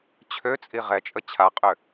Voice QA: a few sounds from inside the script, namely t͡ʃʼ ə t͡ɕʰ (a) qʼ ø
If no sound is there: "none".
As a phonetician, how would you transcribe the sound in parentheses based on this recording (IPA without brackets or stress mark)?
a